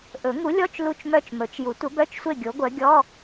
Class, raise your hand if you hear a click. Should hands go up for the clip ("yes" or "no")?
no